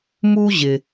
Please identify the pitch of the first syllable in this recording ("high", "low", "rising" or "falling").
high